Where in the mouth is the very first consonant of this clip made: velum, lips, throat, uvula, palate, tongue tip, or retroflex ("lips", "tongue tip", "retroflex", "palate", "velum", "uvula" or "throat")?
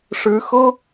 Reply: retroflex